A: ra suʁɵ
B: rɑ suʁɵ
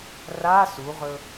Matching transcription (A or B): A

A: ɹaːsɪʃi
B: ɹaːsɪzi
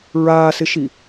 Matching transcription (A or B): A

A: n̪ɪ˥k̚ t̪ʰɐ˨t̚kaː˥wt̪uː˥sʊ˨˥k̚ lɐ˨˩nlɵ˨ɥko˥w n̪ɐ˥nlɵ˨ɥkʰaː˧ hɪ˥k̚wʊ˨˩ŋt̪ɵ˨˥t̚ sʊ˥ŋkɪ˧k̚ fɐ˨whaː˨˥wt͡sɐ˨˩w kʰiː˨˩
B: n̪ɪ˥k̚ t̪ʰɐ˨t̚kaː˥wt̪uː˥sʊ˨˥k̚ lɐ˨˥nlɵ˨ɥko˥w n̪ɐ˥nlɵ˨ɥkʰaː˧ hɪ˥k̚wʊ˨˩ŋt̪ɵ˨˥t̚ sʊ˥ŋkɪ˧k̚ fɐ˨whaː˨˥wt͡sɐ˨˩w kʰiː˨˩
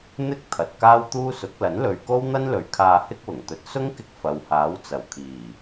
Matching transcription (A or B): B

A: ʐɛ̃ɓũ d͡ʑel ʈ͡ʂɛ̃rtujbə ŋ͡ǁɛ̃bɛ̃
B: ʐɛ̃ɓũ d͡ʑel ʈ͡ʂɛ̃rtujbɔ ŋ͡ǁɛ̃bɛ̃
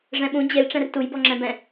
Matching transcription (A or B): B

